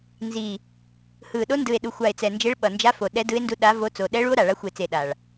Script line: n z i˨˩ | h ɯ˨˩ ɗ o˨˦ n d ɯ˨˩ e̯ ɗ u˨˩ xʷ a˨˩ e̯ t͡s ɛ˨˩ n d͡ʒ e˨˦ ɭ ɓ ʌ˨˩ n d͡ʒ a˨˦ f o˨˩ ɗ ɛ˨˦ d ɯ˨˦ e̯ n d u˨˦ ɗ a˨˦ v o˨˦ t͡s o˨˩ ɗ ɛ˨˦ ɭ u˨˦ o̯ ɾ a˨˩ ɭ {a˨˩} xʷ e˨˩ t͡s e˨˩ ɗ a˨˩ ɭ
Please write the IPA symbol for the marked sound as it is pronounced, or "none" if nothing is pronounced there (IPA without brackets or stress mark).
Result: a˨˦